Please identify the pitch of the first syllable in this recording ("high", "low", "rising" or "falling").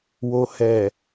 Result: low